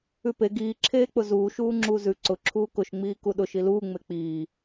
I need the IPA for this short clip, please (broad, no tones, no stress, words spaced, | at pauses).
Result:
ʉpe ɡiː ǁʰeːk͡pʊzuː ʃuːŋ͡ǁuːzʉ ǀʊ ǁʰuːkʊʃ ŋ͡miːkuɗʊʃ iluː ŋ͡mek͡piː